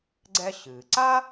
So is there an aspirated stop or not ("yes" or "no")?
no